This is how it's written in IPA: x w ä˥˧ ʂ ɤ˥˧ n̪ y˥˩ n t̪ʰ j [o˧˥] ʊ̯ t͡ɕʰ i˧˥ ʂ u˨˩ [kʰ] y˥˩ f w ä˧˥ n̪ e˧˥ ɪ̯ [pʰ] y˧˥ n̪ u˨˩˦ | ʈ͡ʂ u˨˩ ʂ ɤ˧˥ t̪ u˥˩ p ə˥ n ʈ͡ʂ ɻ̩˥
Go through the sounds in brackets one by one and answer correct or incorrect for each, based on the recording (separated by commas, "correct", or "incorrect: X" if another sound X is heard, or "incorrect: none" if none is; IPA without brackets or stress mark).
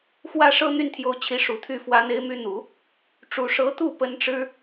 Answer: correct, incorrect: t̪ʰ, incorrect: m